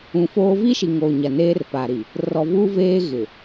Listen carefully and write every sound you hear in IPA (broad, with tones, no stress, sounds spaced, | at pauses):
ũ˨ f oː˦ v i˦ ʃ i˨ ŋ oː˨ ɲ a˨ n eː˦ r p a˨ ɾ i˨ | r ɔ˨ v uː˦ v eː˦ ɣ ɪ˨